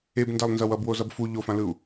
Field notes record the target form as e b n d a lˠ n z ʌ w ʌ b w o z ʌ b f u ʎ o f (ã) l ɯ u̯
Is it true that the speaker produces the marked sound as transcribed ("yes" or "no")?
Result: yes